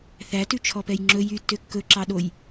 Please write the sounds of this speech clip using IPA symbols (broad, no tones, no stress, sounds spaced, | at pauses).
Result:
θ æ t ʉ t͡ʃʰ ɔ p ɛ j ŋ͡ǁ ɵ j y tː ø kː ɵ ǁ ɑ ɗ o j